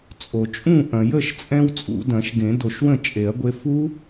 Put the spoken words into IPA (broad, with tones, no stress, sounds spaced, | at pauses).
t͡sʼ o˩ t͡ʃʼ ũ˥˩ ʔ ɐ̃˩ j ə˥˩ ʃ t͡sʼ ɛ̃˧ w t͡sʼ ṵ˨˩˦ d ɐ̃˨˩˦ ʃ ɡ ẽ˨˩˦ d o˨˩˦ ʃ w ə̃˥˩ t͡ʃʼ e˨˩˦ ɐ̯ ɡʷ e˧ f u˦˥